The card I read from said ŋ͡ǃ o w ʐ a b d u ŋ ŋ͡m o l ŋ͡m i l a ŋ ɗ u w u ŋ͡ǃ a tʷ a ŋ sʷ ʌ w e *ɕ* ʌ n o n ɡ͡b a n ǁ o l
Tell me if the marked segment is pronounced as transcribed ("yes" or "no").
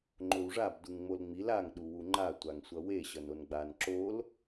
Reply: yes